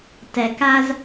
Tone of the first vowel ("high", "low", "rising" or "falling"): low